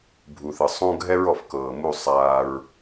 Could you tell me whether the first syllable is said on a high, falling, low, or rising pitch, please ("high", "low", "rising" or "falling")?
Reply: low